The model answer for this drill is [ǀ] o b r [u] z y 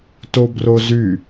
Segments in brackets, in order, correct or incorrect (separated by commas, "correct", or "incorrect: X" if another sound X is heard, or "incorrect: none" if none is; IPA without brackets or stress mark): incorrect: t, incorrect: o